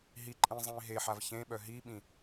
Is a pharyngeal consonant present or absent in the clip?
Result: present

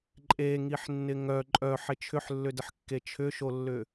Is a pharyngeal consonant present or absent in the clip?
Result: present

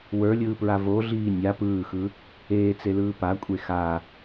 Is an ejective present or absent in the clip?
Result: present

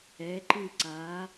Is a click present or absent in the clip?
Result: present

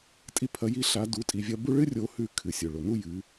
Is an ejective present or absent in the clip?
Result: present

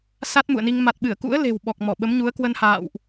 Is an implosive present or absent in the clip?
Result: present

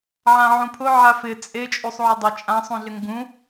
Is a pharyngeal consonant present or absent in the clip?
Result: present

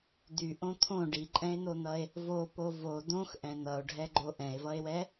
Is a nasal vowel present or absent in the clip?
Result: present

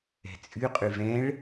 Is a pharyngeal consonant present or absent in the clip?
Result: absent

